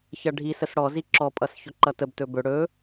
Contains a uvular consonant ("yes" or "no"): no